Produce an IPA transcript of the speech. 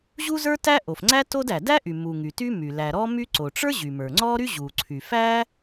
ʑu˥zə˞˥ tæ˥ʔo˩fŋ͡ǀæ˥ to˥dæ˩ dæ˥ʔy˩ mu˩ ŋy˩ ty˥my˩ læ˩ɾɔ˥my˥ ǀo˩ʈ͡ʂə˞˥ ʑy˩mə˞˩ŋ͡ǀɔ˥ɾy˥ ʑu˩ǀʰy˩fæ˥

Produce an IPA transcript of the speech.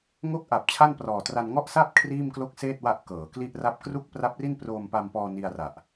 ŋo˦˥k̚ʔa˨˩p̚ t͡ɕʰa˥˩nprɔː˨˩tra˧n ŋɔ˥˩ʔsa˥˩p̚ kʰriː˥˩mklo˥˩k̚seː˥˩t̚wa˦˥ʔ kɤː˩˦kli˥˩ʔra˥˩p̚ kru˥˩k̚pra˦˥p̚ri˥˩n proː˧mpa˧mpɔː˧ ni˧a̯ra˨˩ʔ

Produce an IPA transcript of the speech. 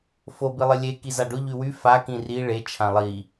fobi lˠɪlʲe kizaɖʊ ʎywy fa kĩri ɭe t͡ʃʰãlˠi

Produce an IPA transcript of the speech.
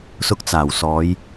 sʊ˧k̚t͡saː˨˩wsɔː˨˧j

